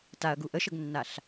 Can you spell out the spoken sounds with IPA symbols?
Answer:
t a ɐ̯ ɡ u ʔ ə ʃ ə ɡ nː a ɬ

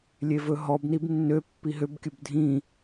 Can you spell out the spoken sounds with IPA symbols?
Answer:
lʲ e v ɵ ɦ ɔ b n i b nː ø pː i ɦ ø b kʲ ɵ b dʱ ĩ

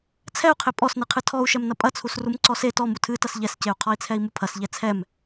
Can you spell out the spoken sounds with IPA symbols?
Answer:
t͡sʰ ɛ u̯ qʰ e pʼ ɔ s n ɨ qʰ ɨ tʰ ɔ u̯ ʃ ɛ m n ɐ pʼ ɐ t͡sʰ u s r u m ǀ ɔ s e t ɔ m u tʰ ɨ t ɐ s ʎ ɛ s c e u̯ qʰ ɔ i̯ t͡sʰ ɛ i̯ m u pʰ ɐ s ʎ ɛ t͡sʰ ɛ m

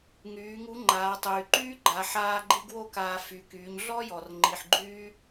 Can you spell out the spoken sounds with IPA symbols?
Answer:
ŋ yː˩˧ ŋ u˧˥ ŋ͡ǃ aː˩˧ tˤ yː˩ ǃ yː˥ ɡ͡ǃ a˩˧ ħ aː˧ ɡ͡ǃ i˧ ɡ w o˥ k aː˧ f y˩˧ k yː˩˧ ɲ ɮ ɔ˥ j ɔ˩ r ŋ͡ǃ i˩ ħ ɡ͡ǃ yː˧

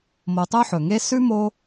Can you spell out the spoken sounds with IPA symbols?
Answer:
m o˨ tˤ ɵ˥ ħ ɵ˩ ŋ e˥ s ʉ˥ m o˦

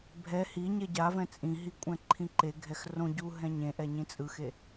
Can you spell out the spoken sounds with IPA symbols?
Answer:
bʱ ɛ h i ɲ e ɟ a v ɛ̃ t͡sʼ ĩ ɦ i kʷʼ ɛ̃ ǃʰ ĩ ǃ e ɡʱ ɛ x r õ ɟ u ɦ ɛ̃ ɲ ẽ ʔ ɛ ɲ ĩ t͡sʼ ɯ x e

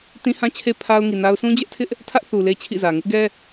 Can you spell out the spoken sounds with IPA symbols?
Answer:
t ĩ˦ h ã˦ t͡ɕʰ e˦ pʰ a˦ ʊ̯ ŋ i˨ n a˦ ʊ̯ sʰ ũ˦ d͡ʑ ɛ˦ ʔ tʰ ɪ˦ ʔ | tʰ ä˦ ʔ θ u˨ l e˦ t͡ɕʰ ḭ˦˨ z ä˨ ŋ ɪ˦ ʔ ɡ ɛ˦

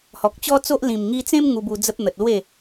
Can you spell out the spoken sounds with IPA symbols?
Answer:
h ɔ˨ k̚ t͡ɕ ɔ˦ t͡s o˦ ʔ l ĩ˨˩ m ŋ i˧ t͡s ẽ˦ m ŋ u˧ b u˧ d͡z ə˦ p̚ n̪ ə˨ t̚ l w e˥˧

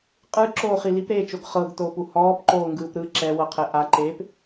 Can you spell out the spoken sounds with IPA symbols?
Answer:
qʼ ɯ ǁ oː χ i l i p ɾ eː t͡ʃ o ɡ χ ɤ ɡ t oː p u h ɔː p ǃ oː ŋ ɡ ɯː p ɾ ɯ ǁ ɛ w ɤ qʰ ɛ ʔ a ǃ eː p

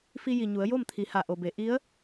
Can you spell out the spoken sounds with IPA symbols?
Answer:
f i˧ j i˩ ɲ u˩˧ ə̯ j o˥˨ m t̪ʰ i˩˧ h a˩ ʔ o˩ b e˩˧ ʔ i˧˥ ə̯

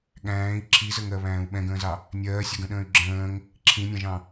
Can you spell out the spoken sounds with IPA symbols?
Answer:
ɠ æ̃ː i̯ ǁʰ i z ə ŋ ɜ β æ̃ː u̯ ɓ ɛ̃ ɡ ə̃ː z ɑ | nʲ ɜː sʲ ʊ ɡ ə̃ ɗ ə̃ː y̯ ɡ͡ǁ ə̃ː ŋ | ǁʰ ĩ nʲ ɑ̃ ʒ ɑ̃

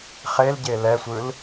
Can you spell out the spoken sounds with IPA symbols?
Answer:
χ e l ɟ e l ɛ sʷ ɯ l

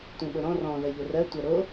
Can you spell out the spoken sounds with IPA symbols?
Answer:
tʷ ẽ ɓ o ɾ ɔ̃ r ɔ̃ ð ɜ ʎ o r ɜ tʷ ɜ ɾ o

